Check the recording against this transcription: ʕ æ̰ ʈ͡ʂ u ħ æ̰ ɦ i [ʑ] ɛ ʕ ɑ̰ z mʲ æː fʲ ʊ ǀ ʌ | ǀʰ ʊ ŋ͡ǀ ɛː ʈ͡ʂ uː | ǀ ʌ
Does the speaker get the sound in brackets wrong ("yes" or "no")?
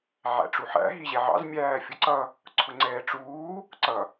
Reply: no